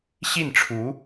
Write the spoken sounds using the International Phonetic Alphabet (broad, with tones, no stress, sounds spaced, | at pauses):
ɕ i˥˩ n ʈ͡ʂʰ u˧˥